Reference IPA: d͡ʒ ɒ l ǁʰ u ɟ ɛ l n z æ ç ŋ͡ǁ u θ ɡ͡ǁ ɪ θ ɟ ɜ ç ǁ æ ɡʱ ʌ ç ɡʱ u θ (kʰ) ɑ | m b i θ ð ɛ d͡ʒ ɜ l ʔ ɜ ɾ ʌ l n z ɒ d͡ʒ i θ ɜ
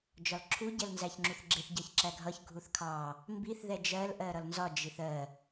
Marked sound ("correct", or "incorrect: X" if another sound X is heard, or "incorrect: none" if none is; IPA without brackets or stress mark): correct